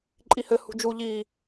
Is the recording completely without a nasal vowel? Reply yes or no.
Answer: yes